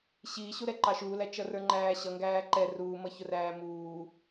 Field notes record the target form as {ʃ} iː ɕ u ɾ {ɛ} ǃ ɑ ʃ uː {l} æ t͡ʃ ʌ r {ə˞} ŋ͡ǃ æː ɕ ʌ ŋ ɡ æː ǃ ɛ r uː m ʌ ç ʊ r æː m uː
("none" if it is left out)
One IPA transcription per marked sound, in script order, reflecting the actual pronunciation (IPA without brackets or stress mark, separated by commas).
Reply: ɕ, ɛ, l, ə˞